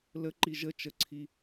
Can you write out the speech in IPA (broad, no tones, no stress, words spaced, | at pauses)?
ləǃi ʒə t͡ʃəǀʰi